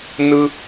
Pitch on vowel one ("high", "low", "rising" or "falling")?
high